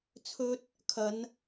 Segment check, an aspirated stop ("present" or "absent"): present